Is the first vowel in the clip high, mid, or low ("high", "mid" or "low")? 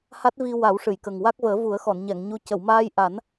low